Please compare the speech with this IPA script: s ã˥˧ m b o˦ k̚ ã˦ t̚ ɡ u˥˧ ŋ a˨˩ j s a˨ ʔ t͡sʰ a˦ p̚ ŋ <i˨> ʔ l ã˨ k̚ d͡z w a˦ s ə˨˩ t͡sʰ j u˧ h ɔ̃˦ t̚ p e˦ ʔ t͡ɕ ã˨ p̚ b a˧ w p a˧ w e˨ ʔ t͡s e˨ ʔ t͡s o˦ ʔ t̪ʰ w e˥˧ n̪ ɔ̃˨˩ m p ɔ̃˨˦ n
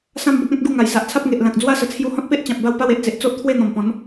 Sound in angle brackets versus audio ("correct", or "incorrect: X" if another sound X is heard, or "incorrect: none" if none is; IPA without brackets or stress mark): incorrect: e˨